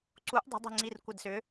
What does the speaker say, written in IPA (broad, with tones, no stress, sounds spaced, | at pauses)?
ǀ u˧˥ ʔ dˤ ə̤˧˥ dˤ i̤˦˨ ŋ͡ǀ i˦˨ r kʷ ə˦˨ d s ʏ˧˥